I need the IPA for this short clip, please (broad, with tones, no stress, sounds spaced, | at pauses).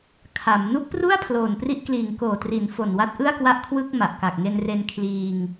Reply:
kʰ a˩˦ m n u˦˥ k̚ p r u˥˩ a̯ pʰ l oː˨˩ n p r i˥˩ ʔ k l iː˨˩ ŋ k oː˨˩ t r i˩˦ n f o˨˩ n w a˦˥ t̚ ʔ ɯ˥˩ a̯ k w a˥˩ ʔ kʰ w ɯ˥˩ k̚ m a˨˩ ʔ k a˨˩ k̚ ŋ e˧ n r e˧ n kʰ l iː˧ ŋ